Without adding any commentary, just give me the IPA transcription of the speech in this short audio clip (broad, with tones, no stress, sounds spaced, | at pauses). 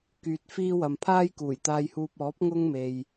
k yː˨ t̚ f iː˥ w ɐ˨ m pʰ aː˥ j k uː˨˩ j t̪ aː˧ j h uː˧ p̚ ɔː˨˥ p̚ ŋ ʊ˥ ŋ m e˨ j